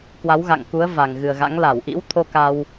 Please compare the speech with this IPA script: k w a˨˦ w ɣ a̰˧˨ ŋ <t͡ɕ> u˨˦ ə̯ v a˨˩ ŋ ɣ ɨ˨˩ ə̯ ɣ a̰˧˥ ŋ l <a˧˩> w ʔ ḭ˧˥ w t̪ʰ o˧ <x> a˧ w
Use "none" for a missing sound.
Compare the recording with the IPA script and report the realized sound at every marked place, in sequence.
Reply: k, a˧˩, k

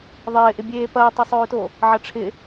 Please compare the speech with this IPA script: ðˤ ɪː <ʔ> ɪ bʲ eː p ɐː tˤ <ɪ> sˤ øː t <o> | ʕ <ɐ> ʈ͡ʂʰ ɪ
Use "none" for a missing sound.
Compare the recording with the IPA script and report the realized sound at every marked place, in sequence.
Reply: ʔ, ɪ, o, ɐ

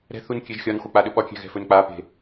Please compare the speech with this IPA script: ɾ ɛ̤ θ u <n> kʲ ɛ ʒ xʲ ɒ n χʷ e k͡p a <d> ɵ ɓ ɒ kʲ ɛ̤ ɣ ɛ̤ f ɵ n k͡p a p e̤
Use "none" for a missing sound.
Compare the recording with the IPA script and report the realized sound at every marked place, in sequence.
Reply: n, ɗ

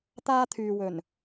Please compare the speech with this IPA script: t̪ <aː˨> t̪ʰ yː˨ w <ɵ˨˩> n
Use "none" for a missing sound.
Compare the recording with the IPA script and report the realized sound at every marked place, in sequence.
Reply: aː˥, ɵ˨˩

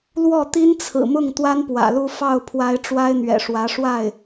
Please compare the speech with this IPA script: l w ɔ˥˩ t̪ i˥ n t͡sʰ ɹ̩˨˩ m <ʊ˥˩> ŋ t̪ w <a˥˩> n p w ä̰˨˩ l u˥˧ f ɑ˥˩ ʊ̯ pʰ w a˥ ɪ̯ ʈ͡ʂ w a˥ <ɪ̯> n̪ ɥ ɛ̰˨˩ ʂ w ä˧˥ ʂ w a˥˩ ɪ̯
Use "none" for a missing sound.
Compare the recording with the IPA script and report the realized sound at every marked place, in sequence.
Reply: ʊ˥˩, a˥, ɪ̯

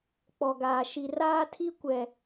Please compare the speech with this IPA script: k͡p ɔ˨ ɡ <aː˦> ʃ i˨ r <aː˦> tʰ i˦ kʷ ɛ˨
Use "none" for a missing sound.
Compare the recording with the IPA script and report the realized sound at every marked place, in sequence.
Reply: aː˨, aː˦

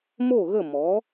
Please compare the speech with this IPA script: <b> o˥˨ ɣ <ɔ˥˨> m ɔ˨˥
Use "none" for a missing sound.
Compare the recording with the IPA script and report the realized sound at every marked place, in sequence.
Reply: m, ə˥˨

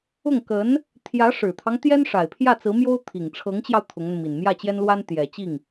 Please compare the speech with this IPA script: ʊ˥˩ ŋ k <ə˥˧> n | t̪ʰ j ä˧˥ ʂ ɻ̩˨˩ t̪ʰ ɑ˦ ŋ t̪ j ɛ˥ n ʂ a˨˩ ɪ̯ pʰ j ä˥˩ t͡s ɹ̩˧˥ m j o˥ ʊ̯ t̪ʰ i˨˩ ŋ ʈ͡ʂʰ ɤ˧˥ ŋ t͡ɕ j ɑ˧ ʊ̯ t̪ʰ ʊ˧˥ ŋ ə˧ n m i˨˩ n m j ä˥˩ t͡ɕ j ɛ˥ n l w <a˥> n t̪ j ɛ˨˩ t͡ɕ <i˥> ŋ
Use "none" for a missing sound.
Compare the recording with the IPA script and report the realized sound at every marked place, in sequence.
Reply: ə˧˥, a˥, i˥˩

